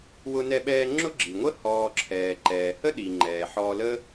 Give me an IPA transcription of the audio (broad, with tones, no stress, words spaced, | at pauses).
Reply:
wʊ˦nɛ˦ɓɛː˦ ŋ͡ǁʊ˥ɡ͡ǁi˩ŋʷə˥ hɔː˨ǁʰɛː˩ ǃɛː˩hə˥ɗi˩ ŋ͡ǃɛː˩ ħɔː˨lə˦